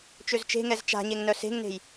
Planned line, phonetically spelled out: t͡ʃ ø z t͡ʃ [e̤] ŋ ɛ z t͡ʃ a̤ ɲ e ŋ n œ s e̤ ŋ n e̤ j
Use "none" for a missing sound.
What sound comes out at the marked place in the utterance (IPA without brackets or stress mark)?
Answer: e̤